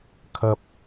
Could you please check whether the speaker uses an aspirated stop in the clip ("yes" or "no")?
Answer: yes